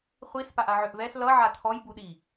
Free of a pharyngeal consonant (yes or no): no